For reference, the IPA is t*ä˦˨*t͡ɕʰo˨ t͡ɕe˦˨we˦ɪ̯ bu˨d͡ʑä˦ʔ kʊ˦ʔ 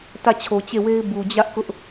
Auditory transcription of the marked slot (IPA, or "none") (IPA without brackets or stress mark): ä˦˨